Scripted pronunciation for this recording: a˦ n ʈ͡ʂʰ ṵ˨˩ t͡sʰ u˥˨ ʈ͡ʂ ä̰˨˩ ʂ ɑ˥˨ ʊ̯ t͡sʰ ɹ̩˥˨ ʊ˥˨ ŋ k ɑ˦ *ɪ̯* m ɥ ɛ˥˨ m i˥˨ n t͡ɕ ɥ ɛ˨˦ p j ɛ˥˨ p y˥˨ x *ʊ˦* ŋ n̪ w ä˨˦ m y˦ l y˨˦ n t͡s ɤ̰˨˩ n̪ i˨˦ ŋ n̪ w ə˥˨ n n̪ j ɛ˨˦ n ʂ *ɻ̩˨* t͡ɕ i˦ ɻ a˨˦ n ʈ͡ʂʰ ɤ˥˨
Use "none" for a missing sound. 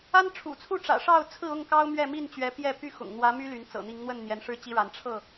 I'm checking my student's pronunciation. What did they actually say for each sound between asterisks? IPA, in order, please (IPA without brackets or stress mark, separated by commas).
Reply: ʊ̯, ʊ̰˨˩, ɻ̩˦